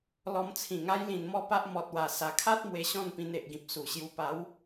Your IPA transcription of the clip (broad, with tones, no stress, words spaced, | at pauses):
lɔ˧mt͡sʰĩ˨˩ŋa˦j lĩ˧nmɔ˥˧pa˦ʔ mɔ˨t̚wa˨˩ sa˨˩kʰa˦t̚ mwe˧ɕɔ̃˥˧npĩ˧n e˨ʔɡĩ˨p̚su˨˩ɕju˧ pa˨˦w